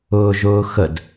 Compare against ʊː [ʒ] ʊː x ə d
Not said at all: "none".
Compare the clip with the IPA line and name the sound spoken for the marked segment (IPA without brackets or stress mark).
ʒ